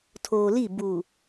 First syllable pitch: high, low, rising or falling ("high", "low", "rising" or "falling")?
low